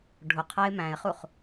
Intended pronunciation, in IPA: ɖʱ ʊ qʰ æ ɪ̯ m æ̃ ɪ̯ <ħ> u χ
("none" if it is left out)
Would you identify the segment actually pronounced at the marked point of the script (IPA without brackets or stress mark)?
χ